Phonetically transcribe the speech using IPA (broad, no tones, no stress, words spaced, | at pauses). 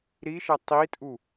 ɾiʃɛ tˤitʼu